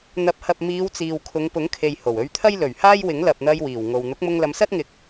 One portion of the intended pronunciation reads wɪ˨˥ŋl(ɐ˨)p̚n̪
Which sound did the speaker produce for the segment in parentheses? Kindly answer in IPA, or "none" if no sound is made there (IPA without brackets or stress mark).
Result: ɐ˨